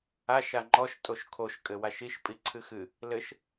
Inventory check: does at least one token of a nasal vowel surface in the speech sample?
no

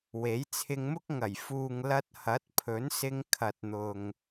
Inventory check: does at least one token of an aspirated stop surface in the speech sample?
yes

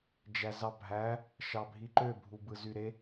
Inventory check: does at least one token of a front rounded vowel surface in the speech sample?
yes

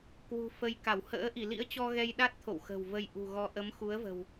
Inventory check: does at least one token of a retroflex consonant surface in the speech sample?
no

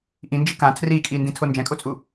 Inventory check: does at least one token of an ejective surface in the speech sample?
yes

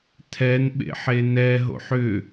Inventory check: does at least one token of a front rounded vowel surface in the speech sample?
yes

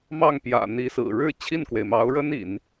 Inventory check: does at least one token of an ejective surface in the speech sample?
no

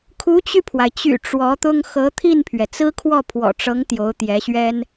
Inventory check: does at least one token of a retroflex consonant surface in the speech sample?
yes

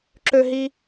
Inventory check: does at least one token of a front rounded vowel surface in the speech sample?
yes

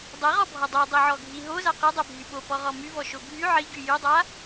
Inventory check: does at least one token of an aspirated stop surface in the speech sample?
no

